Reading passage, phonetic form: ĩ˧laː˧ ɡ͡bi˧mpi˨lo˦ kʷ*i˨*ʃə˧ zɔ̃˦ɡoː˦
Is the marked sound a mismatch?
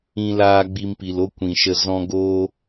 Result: yes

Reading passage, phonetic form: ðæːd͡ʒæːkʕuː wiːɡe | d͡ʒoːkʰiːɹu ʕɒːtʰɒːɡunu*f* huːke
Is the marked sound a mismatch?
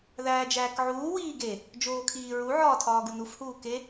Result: no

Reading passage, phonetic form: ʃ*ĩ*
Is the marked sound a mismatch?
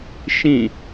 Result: no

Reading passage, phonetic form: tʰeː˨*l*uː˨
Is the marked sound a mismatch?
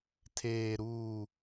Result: yes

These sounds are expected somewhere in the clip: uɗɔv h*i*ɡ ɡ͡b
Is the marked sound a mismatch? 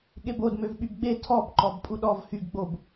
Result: yes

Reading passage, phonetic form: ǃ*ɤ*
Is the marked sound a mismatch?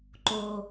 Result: yes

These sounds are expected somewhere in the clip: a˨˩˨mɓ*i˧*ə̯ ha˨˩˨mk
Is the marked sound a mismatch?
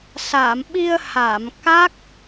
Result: no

